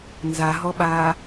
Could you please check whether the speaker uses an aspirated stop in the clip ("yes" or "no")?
no